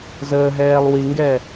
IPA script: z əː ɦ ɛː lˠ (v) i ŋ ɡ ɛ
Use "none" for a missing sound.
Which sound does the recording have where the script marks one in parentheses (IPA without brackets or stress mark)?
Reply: w